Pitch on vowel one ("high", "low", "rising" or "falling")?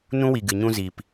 high